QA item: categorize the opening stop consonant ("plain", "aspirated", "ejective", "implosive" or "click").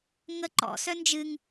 click